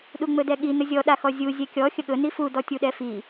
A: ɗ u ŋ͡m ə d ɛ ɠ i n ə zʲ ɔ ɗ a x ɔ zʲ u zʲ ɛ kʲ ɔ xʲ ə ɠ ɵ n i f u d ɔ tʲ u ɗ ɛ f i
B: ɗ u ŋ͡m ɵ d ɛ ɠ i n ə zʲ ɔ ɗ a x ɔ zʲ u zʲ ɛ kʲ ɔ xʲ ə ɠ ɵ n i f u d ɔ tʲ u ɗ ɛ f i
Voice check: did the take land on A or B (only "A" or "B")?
B